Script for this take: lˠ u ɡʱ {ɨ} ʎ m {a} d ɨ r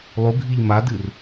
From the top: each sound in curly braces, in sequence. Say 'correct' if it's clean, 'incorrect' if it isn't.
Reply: incorrect, correct

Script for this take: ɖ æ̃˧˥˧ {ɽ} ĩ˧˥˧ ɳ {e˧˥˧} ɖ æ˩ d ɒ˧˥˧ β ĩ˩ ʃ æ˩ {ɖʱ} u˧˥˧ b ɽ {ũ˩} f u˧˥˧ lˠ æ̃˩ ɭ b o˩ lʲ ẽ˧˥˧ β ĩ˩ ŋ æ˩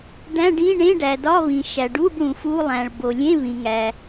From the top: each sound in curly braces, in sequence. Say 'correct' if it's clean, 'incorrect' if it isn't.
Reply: incorrect, incorrect, incorrect, correct

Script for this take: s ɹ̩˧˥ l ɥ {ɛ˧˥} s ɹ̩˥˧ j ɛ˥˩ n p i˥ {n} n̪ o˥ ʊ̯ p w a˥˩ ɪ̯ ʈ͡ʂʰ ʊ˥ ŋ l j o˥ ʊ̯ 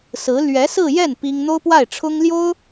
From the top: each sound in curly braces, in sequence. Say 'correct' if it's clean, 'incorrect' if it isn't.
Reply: correct, incorrect

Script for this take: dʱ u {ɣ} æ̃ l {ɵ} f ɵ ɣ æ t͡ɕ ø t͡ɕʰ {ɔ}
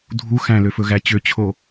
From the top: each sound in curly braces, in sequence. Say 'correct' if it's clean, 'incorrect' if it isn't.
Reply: incorrect, incorrect, incorrect

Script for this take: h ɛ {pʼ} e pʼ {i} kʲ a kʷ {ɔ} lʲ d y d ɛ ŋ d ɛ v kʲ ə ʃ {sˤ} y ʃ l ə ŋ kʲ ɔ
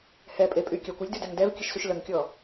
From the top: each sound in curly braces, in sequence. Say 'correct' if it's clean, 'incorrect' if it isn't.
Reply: correct, incorrect, correct, incorrect

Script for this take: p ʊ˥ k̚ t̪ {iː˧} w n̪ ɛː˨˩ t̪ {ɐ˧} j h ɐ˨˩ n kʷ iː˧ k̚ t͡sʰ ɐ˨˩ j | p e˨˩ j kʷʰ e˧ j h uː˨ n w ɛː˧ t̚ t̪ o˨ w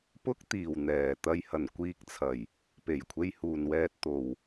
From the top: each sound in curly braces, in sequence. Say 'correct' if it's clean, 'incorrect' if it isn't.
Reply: incorrect, correct

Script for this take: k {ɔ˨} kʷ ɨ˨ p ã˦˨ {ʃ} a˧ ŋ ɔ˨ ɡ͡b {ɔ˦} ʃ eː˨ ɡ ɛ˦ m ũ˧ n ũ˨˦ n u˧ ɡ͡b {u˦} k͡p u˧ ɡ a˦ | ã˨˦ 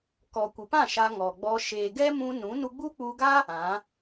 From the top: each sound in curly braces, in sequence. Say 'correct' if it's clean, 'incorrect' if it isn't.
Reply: correct, correct, incorrect, correct

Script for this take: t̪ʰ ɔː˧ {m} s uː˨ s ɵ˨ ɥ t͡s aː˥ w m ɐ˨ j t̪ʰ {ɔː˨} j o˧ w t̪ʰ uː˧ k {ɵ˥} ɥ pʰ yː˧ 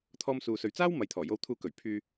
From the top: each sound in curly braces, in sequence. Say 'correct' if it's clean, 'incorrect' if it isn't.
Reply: correct, incorrect, incorrect

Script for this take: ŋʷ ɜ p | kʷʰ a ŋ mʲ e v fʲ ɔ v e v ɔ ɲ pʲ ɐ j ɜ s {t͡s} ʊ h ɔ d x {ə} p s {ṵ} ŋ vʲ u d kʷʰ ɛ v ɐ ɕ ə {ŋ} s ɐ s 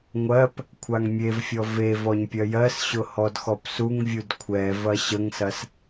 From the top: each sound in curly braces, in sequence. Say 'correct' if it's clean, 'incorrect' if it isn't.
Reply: incorrect, incorrect, incorrect, correct

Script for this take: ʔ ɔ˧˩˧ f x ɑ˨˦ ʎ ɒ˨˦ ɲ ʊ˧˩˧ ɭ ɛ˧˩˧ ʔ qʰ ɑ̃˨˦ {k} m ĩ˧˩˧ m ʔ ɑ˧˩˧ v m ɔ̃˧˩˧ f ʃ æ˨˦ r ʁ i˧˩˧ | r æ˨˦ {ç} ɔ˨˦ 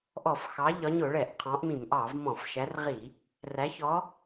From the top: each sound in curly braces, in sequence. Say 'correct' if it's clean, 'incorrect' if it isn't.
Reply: incorrect, correct

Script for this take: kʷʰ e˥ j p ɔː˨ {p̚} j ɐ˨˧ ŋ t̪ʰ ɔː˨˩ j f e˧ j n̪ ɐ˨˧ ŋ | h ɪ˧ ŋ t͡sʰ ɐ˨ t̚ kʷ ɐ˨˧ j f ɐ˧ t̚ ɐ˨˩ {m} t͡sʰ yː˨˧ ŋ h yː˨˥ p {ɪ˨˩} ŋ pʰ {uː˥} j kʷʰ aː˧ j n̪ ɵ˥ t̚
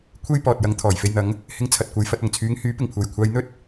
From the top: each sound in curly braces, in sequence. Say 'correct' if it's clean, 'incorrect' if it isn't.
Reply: incorrect, incorrect, correct, incorrect

